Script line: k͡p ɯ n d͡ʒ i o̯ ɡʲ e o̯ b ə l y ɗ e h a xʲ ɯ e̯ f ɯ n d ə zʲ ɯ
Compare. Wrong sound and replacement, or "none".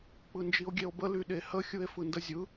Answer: a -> ə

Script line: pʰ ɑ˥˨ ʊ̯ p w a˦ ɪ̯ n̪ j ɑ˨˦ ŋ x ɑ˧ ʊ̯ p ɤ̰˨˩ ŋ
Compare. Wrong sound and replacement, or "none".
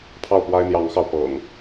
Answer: none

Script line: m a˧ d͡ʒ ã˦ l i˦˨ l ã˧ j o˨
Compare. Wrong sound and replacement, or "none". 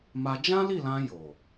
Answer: none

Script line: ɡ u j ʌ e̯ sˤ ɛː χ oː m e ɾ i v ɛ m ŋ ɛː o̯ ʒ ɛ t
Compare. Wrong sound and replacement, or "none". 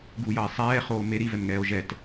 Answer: none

